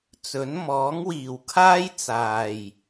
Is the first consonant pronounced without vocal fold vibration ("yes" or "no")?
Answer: yes